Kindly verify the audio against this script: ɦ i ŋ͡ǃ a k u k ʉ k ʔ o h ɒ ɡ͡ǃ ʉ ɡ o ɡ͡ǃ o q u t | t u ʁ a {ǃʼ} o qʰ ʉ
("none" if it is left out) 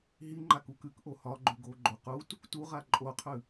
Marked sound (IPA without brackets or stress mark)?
ǃʼ